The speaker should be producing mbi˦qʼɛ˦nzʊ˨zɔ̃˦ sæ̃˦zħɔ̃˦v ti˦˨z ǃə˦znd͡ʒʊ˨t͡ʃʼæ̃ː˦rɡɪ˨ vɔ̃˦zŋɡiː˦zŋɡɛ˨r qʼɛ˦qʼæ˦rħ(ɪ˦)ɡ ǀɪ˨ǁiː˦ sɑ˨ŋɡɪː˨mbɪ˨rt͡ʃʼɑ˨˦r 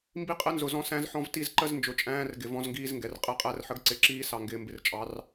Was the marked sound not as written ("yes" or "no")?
yes